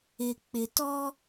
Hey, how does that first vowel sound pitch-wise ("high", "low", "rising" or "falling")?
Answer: low